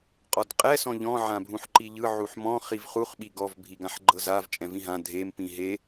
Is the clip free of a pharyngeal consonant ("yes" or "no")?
no